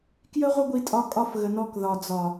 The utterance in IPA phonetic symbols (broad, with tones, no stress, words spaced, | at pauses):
kjə˦ʁʷə˦ɡʷi˧tʼɒ˧ kʼɒ˦fɣə˨nɔ˧k ðɒ˨d͡zɒ˨